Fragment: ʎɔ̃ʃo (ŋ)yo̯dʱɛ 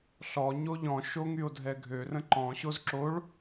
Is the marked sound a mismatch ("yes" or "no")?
no